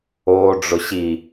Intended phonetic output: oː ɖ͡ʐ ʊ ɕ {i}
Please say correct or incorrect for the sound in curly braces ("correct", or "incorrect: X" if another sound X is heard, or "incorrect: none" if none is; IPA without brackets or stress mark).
correct